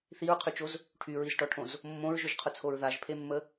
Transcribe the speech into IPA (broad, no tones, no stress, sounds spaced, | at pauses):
θ i ɹ qʰ y t͡ʃ o z | ʈʰ y ɹ i z ʈ ɔ ʈʰ õ z | mː õ ɹ ʒ ʊ ʒ qʰ ʊ t͡sʰ o ɹ ð a ʒ pʰ e mː ə